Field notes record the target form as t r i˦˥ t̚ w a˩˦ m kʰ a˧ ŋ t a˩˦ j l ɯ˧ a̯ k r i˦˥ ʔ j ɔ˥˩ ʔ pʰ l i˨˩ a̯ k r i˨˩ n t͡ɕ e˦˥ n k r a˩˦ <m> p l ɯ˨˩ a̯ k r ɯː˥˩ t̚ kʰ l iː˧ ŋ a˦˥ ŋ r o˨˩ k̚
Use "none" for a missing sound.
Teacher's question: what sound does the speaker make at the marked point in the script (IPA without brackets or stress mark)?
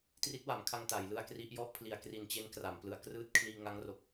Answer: m